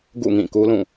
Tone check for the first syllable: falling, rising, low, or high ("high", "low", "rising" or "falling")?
falling